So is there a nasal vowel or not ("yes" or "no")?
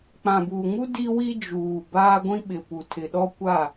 yes